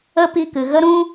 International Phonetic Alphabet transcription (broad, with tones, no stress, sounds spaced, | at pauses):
ə˧ p i˧ k ɨ˨ ɣ ə˦ ɾ ũ˦